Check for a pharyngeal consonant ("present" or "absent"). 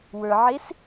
present